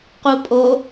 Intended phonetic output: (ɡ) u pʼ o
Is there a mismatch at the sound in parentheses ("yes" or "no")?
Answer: yes